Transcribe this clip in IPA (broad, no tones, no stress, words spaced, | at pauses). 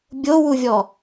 bʲowuvʲɔ